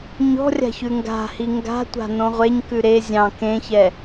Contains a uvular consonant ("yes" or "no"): yes